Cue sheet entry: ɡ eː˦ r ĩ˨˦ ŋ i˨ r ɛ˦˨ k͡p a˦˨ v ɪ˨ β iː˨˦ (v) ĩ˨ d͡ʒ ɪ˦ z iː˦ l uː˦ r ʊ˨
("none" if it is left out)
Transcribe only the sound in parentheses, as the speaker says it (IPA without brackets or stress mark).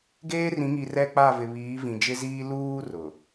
v